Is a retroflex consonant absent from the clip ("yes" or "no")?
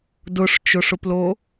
no